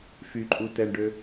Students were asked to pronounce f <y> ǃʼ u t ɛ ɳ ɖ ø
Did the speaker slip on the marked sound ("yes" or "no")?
no